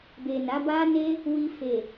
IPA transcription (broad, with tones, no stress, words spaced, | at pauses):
be˨na˨˦ ba˦ne˦ | wi˧ fe˨